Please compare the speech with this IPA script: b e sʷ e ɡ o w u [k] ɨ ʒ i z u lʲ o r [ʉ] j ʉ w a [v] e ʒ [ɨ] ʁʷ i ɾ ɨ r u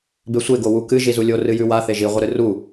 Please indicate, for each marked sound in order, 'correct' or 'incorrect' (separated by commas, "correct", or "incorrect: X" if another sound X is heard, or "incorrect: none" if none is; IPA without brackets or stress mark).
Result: correct, incorrect: ɨ, incorrect: θ, incorrect: i